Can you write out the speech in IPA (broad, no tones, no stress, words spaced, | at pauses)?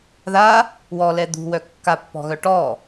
ða | wɔlɛ d̪ṳwœ kːapːɔ̤ɣœ ʈɔ